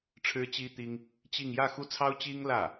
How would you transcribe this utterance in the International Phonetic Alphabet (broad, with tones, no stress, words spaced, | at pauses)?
ʈ͡ʂʰɻ̩˥t͡ɕi˥t̪i˥ŋ | t͡ɕi˥˧ŋ jä˥˧xu˥˩t͡sʰɑ˥ʊ̯ t͡ɕi˥ŋlä˥˩